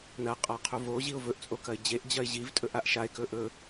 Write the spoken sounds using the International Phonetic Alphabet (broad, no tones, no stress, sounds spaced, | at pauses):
n ɐ qʼ a qʰ u v o ʑ i ʊ̯ v ɵ ʔ t͡sʼ o k ɐ ɪ̯ d͡ʑ e ʔ d͡ʑ ɐ ɪ̯ ʑ i v tʼ ɵ ʔ a ʔ ʃ a ɪ̯ k ɵ ʔ ɵ